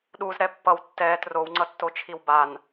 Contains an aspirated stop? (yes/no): yes